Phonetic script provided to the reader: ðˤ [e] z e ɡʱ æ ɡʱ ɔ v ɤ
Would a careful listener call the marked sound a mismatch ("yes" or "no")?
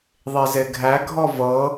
no